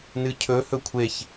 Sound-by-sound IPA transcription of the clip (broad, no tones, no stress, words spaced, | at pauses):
nɨcʰɵ hɵkʷʰeç